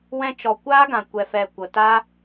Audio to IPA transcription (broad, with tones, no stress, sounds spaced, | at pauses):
w ɛ̃˧ t͡ʃ ɔ˨ kʷ aː˦ ɡ ã˨ kʷ ɛ˨ f ɛ˨ kʷ ə˨ t a˦